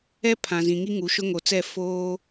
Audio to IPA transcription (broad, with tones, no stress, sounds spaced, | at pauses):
ɛ˦ pʰ ã˨ z ĩ˨ ŋ i˦ ŋ u˨ ʃ ʊ˦ ŋ o˨ t͡s ɛ˦˨ f oː˦